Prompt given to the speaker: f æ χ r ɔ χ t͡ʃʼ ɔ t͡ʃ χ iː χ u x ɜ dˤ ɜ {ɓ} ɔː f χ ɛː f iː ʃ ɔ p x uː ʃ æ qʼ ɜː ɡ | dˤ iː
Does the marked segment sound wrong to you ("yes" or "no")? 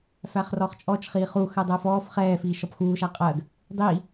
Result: yes